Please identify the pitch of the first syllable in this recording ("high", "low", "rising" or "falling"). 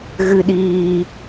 low